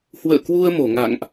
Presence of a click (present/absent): absent